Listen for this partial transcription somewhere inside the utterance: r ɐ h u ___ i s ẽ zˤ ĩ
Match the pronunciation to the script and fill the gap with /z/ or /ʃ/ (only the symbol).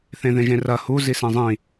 z